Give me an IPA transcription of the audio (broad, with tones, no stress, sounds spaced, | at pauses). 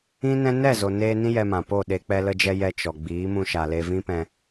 ĩ˦ n ɛ̃˦ n ɛ˦˨ z o˨ n eː˧ n ĩ˦ j ɛ˧ m ã˨ p o˦˨ ɗ e˧ k͡p ɛ˧ l ə˧ d͡ʒ ɛ˧ j ɛ˧ t͡ʃ ɔ˨ ɡ͡b iː˨˦ m ũ˧ ʃ a˨ l e˧ v ĩ˦ p ɛ̃˧